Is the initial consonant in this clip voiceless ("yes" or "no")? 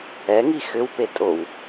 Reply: no